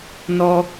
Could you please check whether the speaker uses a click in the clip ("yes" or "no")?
no